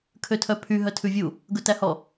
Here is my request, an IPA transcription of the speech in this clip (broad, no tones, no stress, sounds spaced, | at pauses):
kʰ ø tʰ œ pʰ y ɦ œ tʰ ʉ vʲ u | ɡ ɵ t æ h ɔ